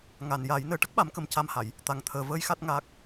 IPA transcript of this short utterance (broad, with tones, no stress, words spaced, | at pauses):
ŋa˨˩nja˨˩˦j nəː˨˩ʈə˦˥k̚ɓa˨˩˦mkə˨˩m ca˧mha˨˩˨j | t̪a˨˩ŋt̪ʰəː˨˩vəː˧˥j xa˦˥t̚ŋaː˦˥k̚